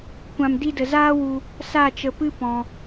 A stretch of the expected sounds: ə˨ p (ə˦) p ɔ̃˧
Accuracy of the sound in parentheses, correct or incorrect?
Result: incorrect